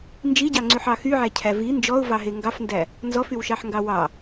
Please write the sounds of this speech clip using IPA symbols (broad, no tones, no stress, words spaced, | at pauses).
nd͡ʒiɟɑŋ͡ǀyħɑ xyʕæcʰæ vi nd͡ʒɔʊ̯vɑɦe ŋɡɑfndæ | nzɔfywʃɑħŋɡɑ wɑ